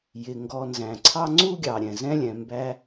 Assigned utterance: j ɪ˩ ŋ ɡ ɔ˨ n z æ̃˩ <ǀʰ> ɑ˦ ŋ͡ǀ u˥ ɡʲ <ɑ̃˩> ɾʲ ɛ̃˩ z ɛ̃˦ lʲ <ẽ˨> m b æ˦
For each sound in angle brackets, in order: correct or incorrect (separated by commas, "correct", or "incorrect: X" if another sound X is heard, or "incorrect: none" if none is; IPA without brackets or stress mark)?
correct, incorrect: ɑ˩, incorrect: ɛ̃˨